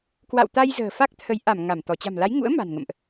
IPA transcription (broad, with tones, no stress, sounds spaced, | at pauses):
k w a̰˧˨ w t̪ a˧ j z ə̤ː˨˩ f a˦˥ k̚ t̪ʰ ə˨˦ j ʔ a˧˩ m ŋ a˧˩ m t̪ ɔ˧˩ t͡ɕ a̤˨˩ m l a˨˦ j ŋ ṵ˧˥ ə̯ m a̤˨˩ n ŋ ə̰˧˨ m ʔ